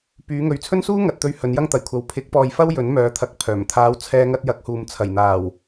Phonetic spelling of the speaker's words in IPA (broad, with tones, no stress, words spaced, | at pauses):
pyː˨˧ŋɵ˨ɥt͡sʰɵ˥n suː˥ŋɐ˨t̚t̪ɵ˧ɥ hɵ˨˧njɐ˥ŋt̪ɐ˨˩jkʷʰɐ˨˧w pʰɪ˨˥k̚ pɔː˨j fɐ˥w jɵ˨˥nmœː˨˧t̪ʰɐ˨˥k̚ pʰœː˨˩m t̪ʰaː˨˧w t͡sʰɛː˧ŋɐ˧t̚ jɐ˨˥k̚huː˨m t͡sʰɐ˨˩jn̪aː˨˩w